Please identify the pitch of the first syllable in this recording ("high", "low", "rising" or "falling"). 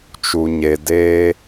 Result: low